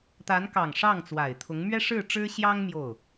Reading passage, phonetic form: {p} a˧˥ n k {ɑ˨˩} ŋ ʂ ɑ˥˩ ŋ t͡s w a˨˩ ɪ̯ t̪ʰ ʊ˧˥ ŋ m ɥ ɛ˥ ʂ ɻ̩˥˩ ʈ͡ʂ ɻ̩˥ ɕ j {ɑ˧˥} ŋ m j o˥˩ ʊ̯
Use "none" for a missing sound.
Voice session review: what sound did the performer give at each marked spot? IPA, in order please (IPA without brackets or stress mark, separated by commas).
t̪, ɑ˨˩, ɑ˥